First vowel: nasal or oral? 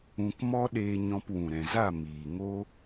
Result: nasal